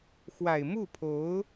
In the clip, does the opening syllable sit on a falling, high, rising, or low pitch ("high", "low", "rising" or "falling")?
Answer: low